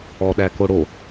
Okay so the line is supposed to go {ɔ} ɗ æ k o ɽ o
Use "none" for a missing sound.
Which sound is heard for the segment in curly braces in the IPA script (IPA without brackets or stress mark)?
ɔ